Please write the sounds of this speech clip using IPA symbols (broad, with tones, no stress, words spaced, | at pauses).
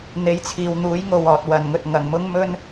n̪e˨˥jt͡sʰiː˨wn̪uː˨˥j ŋo˨wɔː˨t̚ wɐ˨nŋɵ˧t̚ŋɐ˨ŋ mʊ˥ŋmɵ˥n